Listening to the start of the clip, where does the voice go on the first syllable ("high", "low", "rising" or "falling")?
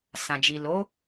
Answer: low